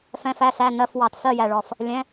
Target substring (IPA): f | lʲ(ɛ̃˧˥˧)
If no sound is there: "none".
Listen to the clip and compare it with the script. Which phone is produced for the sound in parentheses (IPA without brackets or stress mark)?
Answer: ɛ̃˧˥˧